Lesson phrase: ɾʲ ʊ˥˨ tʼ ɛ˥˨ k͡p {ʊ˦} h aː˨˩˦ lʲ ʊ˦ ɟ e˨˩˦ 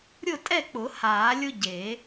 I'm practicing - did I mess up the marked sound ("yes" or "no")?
yes